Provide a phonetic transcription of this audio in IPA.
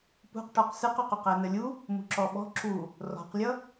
pṳqʈɔq sɨqɔqoq ænəlʲu | mṳǁɔɓɔ̤ ǁu | rɔ̤qlʲʌ

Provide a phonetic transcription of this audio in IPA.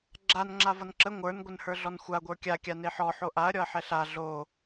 ɡ͡ǁan ŋ͡ǁavʌnǁə ŋʷə˞n ɡʷənhə˞ɮɔnxʷa ɡʷə˞kʲa kʲaneħɔ ħoʔaɐ̯ ɾʲɔɐ̯ħɛɬa ɮo

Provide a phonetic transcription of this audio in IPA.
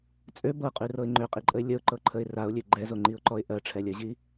t͡sʼø bɤqʼʉrɤɪ̯ ŋ͡ǃøqʼiǃʼəɪ̯ lʲəʊ̯ǃɤǃʰəɪ̯ raʊ̯lʲø ɡ͡ǃɛzoŋ͡ǃiʊ̯ǃɔɪ̯ ʔɜʈ͡ʂʰɛlʲɜʑi

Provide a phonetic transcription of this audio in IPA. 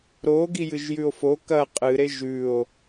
ɾo ɡijɨʒjʉo̯fo kɐ qʼɨɾe ʒʉo̯

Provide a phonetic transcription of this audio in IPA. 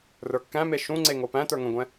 rə˞kːæ̃me ʃũŋ͡ǀe ŋopæ̃tə˞ ŋə̃ɡʷɛ̃

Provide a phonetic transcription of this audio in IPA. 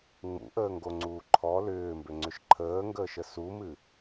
ŋ͡mṵʔəːŋɡoŋ͡ǀuː ǃʰɔ lʏːmbʏŋ͡ǀʏʃ ǃʰəːŋɡəːʃə sumɨ

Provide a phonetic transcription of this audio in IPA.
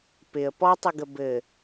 pɪə̯ pɔtˤɪɡə bɘ

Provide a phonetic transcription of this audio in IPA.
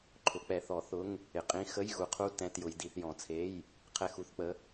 ǃʰʊ˨˦k͡pɛ˨˦ θɔ˨˦θʊ˧˥˧ŋ | ɪ˨˦qʼĩ˧˥˧ xə˧˥˧jɣu˨˦qʰu˧˥˧ tɛ̃˧˥˧tjʊ˨˦jdi˨˦θ jɔ̃˨˦t͡sʰe˧˥˧j | qʰɛ˧˥˧xu˧˥˧θk͡pə˧˥˧

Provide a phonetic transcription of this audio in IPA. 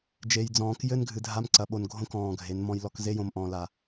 d͡ʒe˨jd͡zɔ̃ː˨k jɘ˦nɡʱɨ˨dʱa˦m ǀɐ˨ɓo˨nɡʱõ˦kɔ̃ː˨ ɡʱe˨˦nmɔ̃˦j lɔ˨kze˦jõ˨m ʔɔ̃˨la˨

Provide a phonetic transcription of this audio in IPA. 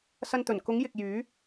sɐ˧nt̪ɵ˨˩n kʊ˨˥ŋjɪ˨k̚ jyː˨˥

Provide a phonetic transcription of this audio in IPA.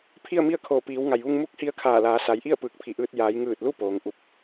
pʰi˥˨ə̯mi˥˨ə̯ kʰoː˧˩piː˩˧wŋa˩jʋu˧ŋ mu˧˥k̚hi˧ə̯kʰaː˧˩ laː˩˧sa˩˧jʔi˥˨ə̯ pɯː˧˩k̚pʰi˧˩ʔɯː˧t̚ jaː˩˧jŋɯː˧˩t̚lu˥˨ poː˩˧ŋʔu˧˩p̚

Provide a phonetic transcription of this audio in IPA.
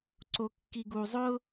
ǀokːiɡu zˤʊ

